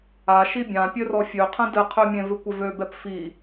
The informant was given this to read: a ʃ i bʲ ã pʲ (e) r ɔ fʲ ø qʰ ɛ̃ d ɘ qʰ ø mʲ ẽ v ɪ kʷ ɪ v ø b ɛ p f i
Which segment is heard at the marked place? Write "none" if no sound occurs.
ø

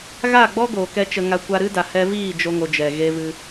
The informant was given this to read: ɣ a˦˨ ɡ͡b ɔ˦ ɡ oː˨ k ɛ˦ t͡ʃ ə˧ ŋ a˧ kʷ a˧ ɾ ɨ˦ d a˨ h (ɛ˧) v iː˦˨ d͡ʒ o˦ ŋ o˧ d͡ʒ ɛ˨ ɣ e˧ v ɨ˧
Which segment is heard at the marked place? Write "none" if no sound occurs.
ɛ˧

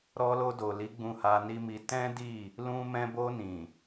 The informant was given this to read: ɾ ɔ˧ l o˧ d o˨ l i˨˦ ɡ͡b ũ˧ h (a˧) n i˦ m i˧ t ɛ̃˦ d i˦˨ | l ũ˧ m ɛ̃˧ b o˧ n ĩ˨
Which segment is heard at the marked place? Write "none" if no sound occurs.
a˧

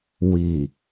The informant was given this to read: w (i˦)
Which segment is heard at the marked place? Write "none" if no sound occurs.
i˨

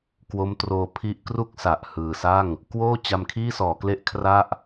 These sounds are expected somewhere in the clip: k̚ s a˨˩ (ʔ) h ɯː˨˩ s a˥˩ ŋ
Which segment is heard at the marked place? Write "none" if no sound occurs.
ʔ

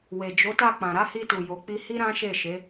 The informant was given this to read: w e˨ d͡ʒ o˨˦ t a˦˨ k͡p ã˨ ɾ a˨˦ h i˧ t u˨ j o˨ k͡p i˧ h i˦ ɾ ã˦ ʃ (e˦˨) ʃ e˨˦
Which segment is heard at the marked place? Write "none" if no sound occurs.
e˦˨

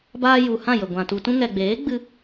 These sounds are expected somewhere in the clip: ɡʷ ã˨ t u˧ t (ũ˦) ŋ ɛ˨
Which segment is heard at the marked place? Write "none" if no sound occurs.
ũ˧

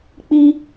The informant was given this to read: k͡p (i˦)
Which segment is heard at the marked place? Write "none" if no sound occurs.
i˦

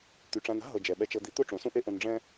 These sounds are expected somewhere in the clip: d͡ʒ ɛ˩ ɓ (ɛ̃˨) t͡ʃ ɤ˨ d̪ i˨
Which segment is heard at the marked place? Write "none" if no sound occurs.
ɛ˨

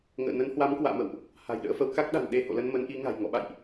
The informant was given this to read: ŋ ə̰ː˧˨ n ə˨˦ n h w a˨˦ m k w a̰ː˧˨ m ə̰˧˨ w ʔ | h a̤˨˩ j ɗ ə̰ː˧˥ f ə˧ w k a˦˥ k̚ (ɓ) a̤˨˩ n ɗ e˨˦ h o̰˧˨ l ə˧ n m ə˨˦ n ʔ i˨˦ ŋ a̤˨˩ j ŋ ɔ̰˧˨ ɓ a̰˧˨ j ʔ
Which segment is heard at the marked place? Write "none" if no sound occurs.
ɗ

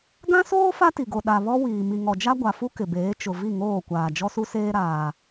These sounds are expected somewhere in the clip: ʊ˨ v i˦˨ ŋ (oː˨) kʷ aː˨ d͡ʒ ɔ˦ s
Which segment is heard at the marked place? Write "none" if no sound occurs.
oː˦˨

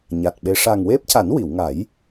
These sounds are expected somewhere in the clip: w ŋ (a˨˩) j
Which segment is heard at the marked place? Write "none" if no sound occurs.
a˨˩˦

